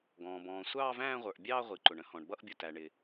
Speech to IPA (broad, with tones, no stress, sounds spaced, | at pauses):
ɡ ɔ̃ː˩ b ɔ̃ː˩ sʷ ɑː˦˨ v æ̃ː˦˨ ʁʷ ə˞˩ ʔ bʲ ɑː˦˨ ʁʷ i˩ ǃ ʊ˩ ɳ ə̃˦˨ h ɔ̃˩ ɳ b ʌ˦˨ ʔ bʲ ʊ˩ t æ˩ ɳ ɪ˩